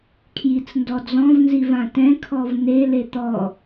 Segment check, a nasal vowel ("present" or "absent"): present